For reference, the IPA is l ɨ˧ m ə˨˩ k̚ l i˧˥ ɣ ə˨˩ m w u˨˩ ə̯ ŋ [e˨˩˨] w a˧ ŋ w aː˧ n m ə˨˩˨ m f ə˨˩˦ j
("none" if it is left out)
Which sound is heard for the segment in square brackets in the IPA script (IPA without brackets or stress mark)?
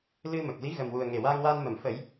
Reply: e˨˩